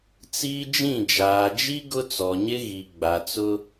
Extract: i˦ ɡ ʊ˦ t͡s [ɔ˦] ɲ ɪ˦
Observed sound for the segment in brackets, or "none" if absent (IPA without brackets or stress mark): ɔ˨